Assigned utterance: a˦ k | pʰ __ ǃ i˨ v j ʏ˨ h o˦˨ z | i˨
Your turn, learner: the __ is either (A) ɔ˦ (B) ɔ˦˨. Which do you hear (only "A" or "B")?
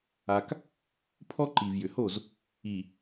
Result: A